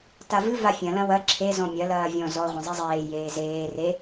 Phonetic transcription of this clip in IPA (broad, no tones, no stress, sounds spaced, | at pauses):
t a v ɨ v a fʲ ɐ̃ l ɐ̃ w ɐ ǁʰ e z ɔ̃ mʲ ɐ l ɐː vʲ ɔ̃ z ɔ ʁʷ ɐ̃ zˤ e zˤ eː j eː z eː r e